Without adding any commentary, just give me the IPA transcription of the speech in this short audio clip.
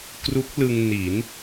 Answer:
k r u˦˥ k̚ l ɯ˧ ŋ n i˩˦ n

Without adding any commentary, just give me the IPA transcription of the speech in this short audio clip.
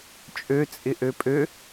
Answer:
t͡ʃʼ ø t͡sʼ ɪ ʔ ø pʼ ø

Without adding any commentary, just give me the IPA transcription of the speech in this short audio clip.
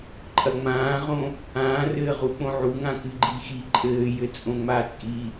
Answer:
ǃʼ ɐ ŋ͡m ãː ʁ õ | ãː r ɘː ʁ u k͡p õ ʕ u ŋ ã k ɨ ɡ͡ǃ i x i ǃʼ ɘː j ɘ t͡sʼ õ ŋ͡m a t͡sʼ i

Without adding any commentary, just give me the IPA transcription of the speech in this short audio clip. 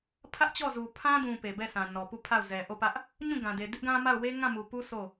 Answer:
pʰ ä˦ ʔ t͡ɕ ɔ˦˨ z u˨ pʰ ã˦ d ũ˨ p e˨ b ɛ˦˨ s ã˨ n ɔ˨ p u˦˨ pʰ a˦˨ ʊ̯ z ɛ˨ ʔ o˦˨ p ä˦ ʔ | ɲ ũ˦˨ ɡ ã˨ d e˨ d ɪ˦ ʔ ɡ ã˦ m a˦˨ ʊ̯ w e˦ ŋ ã˦˨ m u˨ p u˦ s o˦˨

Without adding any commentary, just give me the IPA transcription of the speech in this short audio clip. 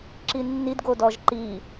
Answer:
ǁ i nː i d ɡ o d ɔ ʒ ǃ i

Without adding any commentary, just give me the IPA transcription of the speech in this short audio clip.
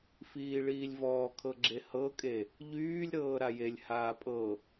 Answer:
f iː ɭ iː lʲ v ɔː kʰ ɤ ɡ͡ǁ e h ɤ kʼ e | ʎ yː lʲ ɾ ɤː ɾ a j e lʲ h aː pʼ ɤ

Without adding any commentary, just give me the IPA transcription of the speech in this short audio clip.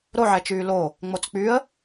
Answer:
ɾ o ʕ ɛ t͡ʃ yː l o | ŋ͡m o t͡s k͡p y ə̯

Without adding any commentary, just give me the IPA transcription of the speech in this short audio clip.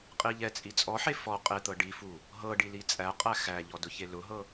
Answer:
qʼ i ʎ ɛ t͡sʼ i t͡sʼ ɔ ħ e f ɔ qʼ e t̪ ɤ ɖ i f u | ɦ ɤ ɖ i l i t͡sʼ æ qʼ æ x æ ʎ ɔ d ʊ ç e l ʊ ɦ ɤ

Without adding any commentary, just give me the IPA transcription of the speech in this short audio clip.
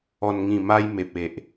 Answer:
ɔ˨˩ n ŋ ĩ˨˩ m a˧ j m e˨ p̚ e˨ ʔ

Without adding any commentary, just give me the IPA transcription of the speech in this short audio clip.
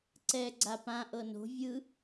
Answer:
ǀ ɛ ɡ͡ǀ a p ã ʔ ɤ n o̤ vʲ ɯ

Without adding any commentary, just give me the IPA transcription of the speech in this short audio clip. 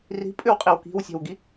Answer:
r i̤ pʼ ʏ w qʼ i w k i̤ w sʲ ɛ̤ w ɡ i

